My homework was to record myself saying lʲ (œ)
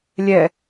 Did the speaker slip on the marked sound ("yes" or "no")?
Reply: yes